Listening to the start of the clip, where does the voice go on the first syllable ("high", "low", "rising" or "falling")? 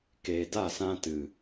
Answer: low